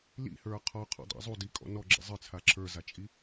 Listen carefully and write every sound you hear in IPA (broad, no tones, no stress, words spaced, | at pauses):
lḭhə˞ qʰɔqʰɔ̰dˤḭ zˤudikʼɔ̰ nɔɡ͡ǁḛ zˤɨt͡sʰa ǁʰə˞zat͡ʃʼi